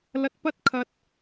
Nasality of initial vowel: oral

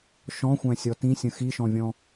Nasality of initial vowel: nasal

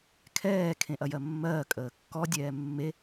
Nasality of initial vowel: oral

